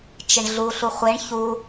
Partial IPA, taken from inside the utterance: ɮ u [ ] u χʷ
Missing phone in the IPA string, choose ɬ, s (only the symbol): ɬ